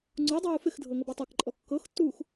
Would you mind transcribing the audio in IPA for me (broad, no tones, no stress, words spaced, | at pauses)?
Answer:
ŋ͡ǀudˤuː fɪxdʱɤ ŋɤbutˤakǃʼɔ kːɤxtːuːx